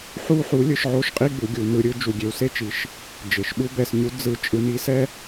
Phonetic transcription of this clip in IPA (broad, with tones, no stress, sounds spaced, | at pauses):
ħ u˦ ħ u˨˥ lʲ ɯ˩˧ ʃ ʕ o˦ ʃ qʼ i˦ ɡ͡b u˩˧ ɡʲ u˩˧ n ɯ˩˧ ɾʲ ɯ˦ d͡ʒ u˩˧ ɡʲ e˩˧ w s e˦ t͡ʃ i˩˧ ʃ | d͡ʒ e˩˧ ʃ ɓ u˦ b ɛ˩˧ s ɲ u˨˥ d͡z ɯ˨˥ t͡ʃʼ ɯ˨˥ n i˨˥ s ɛ˦